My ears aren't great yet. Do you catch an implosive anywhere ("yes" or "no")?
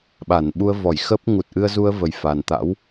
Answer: yes